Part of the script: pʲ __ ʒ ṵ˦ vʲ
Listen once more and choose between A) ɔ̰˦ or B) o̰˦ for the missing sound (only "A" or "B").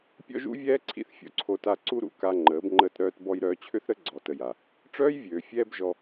A